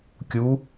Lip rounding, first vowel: rounded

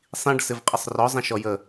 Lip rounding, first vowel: unrounded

